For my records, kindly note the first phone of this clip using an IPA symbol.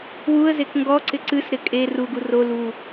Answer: w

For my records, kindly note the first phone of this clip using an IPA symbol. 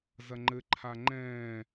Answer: z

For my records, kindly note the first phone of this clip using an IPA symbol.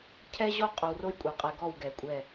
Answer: cʰ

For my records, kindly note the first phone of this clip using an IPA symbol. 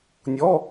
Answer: nʲ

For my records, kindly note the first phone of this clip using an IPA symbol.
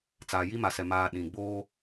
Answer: t͡s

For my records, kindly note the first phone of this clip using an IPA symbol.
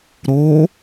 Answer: ɾ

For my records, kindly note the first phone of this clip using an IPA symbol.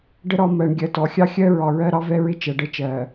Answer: ɖ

